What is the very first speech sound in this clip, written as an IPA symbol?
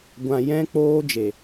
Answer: ɡʷ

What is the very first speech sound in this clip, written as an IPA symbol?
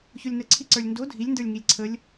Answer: ç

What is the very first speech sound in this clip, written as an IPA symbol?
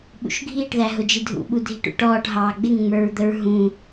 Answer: ɓ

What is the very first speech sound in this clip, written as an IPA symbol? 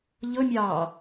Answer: ʎ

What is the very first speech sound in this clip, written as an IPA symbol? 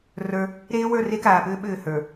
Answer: r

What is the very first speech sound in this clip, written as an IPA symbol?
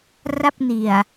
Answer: r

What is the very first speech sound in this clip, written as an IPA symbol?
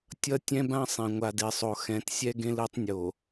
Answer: tʲ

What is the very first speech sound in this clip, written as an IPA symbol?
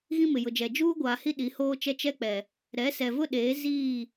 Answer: ɣ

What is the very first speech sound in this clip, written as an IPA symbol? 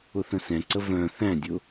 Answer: ʊ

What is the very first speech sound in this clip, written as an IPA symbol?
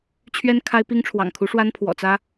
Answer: t͡ɕʰ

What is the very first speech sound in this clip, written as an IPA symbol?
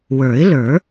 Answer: w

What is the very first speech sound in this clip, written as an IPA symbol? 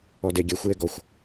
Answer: ɔ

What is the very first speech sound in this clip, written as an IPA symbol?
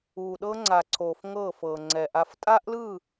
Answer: uː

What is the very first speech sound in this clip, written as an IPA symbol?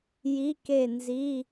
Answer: j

